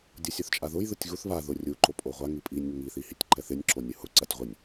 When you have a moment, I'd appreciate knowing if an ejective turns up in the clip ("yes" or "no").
yes